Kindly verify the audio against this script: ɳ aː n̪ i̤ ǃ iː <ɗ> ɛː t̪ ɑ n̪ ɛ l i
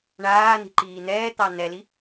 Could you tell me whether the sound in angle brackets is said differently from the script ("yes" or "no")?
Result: yes